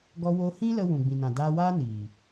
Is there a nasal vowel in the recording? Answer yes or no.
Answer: yes